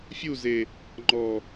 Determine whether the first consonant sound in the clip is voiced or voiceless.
voiceless